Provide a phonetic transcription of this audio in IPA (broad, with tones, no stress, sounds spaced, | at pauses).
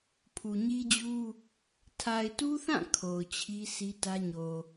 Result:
pʰ u˨ ɲ i˦ d͡ʑ u˦ | tʰ a˨ ɪ̯ t u˦ θ ã˦˨ kʰ o˨ ʊ̯ t͡ɕʰ i˦ s i˦ t ä˦ ɲ o˨